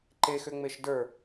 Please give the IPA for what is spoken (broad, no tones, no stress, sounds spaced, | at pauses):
ǃ e x ʏ ŋ͡m e ʃ d ə˞